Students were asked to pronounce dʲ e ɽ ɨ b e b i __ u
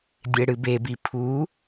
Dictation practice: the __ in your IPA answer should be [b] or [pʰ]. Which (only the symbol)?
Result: pʰ